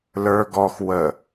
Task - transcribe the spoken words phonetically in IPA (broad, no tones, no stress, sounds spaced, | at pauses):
l ə˞ ɡ ɔ x w ə